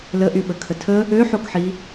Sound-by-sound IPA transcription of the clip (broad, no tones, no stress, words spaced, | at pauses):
ləʔyɓəkʰə tʰə | øħokħi